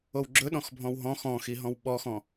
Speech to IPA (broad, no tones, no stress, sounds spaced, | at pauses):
o w ɡ͡ǁ ɵ ɗ ɔ̃ x bʱ ɔ̃ w ɦ ɔ̃ x ɔ̃ x i ɦ ɔ̃ w ɓ ɔ x ɔ̃